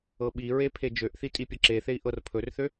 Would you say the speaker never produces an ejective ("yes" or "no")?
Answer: no